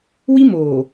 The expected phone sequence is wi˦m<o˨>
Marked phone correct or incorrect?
incorrect